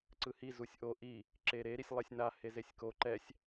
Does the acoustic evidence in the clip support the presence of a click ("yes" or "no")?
yes